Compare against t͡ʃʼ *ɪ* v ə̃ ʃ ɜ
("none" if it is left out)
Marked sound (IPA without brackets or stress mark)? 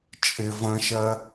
ɪ